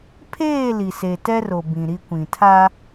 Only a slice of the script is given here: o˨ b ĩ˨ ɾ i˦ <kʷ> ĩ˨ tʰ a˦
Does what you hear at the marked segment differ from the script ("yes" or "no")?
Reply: no